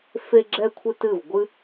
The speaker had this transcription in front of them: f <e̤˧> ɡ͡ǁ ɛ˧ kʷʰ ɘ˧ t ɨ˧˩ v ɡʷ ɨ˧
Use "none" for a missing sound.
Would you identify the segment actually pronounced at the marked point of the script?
e˧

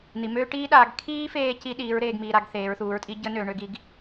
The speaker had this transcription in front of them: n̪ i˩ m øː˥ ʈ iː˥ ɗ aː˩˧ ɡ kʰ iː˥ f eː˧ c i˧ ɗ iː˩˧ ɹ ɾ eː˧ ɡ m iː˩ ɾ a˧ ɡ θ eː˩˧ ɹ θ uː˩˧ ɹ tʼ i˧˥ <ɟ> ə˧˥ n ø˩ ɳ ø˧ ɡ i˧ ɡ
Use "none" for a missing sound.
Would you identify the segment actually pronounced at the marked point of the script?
ɟ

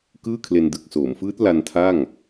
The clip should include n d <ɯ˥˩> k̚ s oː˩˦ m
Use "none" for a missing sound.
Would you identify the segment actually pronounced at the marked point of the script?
ɯ˨˩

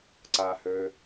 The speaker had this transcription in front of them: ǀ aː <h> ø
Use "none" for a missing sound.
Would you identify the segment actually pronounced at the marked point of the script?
h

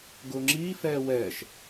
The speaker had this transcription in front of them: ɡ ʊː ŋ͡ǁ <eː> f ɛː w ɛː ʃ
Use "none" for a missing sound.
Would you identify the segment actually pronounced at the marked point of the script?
iː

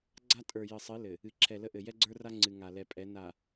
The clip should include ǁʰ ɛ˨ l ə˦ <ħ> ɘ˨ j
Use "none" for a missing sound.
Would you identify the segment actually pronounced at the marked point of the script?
ʔ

